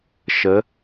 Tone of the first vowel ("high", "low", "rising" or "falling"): rising